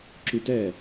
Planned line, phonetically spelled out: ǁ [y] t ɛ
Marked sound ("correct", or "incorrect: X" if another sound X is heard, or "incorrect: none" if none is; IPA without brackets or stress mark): correct